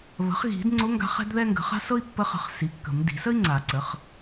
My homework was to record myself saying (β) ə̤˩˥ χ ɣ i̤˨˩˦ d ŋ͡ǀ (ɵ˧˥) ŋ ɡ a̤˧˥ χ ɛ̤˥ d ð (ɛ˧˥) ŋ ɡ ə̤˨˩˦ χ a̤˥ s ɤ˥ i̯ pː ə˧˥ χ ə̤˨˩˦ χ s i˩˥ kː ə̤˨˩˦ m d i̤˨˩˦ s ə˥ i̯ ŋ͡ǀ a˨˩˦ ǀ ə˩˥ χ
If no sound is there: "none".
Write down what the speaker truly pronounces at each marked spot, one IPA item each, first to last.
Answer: β, ʊ˧˥, ɛ˥

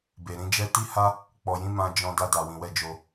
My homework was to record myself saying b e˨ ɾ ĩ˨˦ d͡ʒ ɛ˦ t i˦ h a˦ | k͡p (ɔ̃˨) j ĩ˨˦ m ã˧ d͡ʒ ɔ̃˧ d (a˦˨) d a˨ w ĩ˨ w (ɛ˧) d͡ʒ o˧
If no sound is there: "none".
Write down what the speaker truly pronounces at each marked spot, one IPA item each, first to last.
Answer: ɔ˨, a˧, ɛ˧

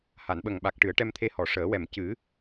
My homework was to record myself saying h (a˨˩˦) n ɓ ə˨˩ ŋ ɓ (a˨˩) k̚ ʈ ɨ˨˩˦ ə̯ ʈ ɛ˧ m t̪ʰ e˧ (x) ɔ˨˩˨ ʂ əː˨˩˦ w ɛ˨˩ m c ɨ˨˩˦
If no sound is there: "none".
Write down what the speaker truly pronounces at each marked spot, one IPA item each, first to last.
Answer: a˨˩˨, a˨˩, h

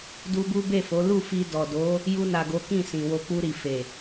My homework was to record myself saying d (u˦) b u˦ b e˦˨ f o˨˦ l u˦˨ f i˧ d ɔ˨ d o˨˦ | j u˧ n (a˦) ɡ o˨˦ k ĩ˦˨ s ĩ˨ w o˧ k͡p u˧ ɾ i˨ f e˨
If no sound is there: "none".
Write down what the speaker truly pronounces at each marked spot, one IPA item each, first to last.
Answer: u˧, a˨

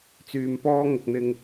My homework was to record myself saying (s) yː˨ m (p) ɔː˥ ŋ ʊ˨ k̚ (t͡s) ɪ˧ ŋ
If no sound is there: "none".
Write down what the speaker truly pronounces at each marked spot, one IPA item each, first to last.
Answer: t͡s, p, n̪

